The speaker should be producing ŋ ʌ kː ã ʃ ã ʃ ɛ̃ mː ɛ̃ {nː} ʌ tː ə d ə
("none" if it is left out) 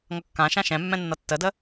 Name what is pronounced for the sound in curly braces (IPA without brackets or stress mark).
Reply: nː